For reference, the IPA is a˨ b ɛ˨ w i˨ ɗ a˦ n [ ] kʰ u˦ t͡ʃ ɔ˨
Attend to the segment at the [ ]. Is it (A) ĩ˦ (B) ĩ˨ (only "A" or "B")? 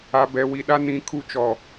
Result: B